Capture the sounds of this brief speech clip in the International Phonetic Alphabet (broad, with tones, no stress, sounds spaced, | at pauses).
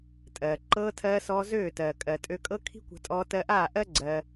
tʼ ɜː˨ ǃ ɤː˧ tʰ ɜː˧ s ɔː˧ z øː˦˨ t ɜː˨ kʼ ɜ˨ tʼ ø˧ kʼ ɤ˦ kʰ i̤˦ kʷ a̤˧ tʼ ɔː˧ t ɜ˧ ʔ aː˦˨ ʔ ɜ˦ ɡ͡ǀ ɜ˧